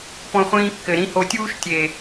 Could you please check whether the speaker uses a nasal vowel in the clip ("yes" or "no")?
yes